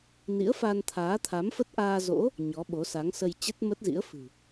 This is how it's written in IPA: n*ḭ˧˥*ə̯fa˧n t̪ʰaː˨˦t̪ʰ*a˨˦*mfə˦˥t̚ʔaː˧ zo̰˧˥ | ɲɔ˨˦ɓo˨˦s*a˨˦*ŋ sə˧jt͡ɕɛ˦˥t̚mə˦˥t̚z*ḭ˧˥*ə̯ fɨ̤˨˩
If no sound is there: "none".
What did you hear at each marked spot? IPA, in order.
ḭ˧˥, a˨˦, a˨˦, ḭ˧˥

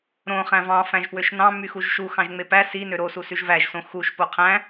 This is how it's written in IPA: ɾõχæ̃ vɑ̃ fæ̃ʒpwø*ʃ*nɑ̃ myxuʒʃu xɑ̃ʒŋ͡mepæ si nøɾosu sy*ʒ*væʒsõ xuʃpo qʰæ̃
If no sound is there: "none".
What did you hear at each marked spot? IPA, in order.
ʃ, ʒ

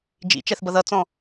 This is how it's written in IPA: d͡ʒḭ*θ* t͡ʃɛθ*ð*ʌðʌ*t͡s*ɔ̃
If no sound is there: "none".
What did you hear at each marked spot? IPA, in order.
none, b, t͡s

